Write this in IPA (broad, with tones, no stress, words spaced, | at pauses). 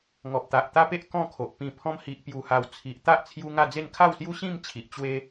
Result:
ŋɔ˨p̚t̪a˨ʔt̪a˦pe˦ʔ kɔ̃˥˧kʰo˨ʔpĩ˧ pʰɔ̃˧mhi˨ʔpju˨˩ha˨˩w t͡sʰi˨ʔ t̪a˦ʔt͡sʰju˧ ŋa˥˧d͡ze˥˧n kʰa˥˧wsju˦ɕĩ˥˧m t͡ɕʰi˨ʔ t͡ɕwe˦